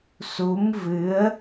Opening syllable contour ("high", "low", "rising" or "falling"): rising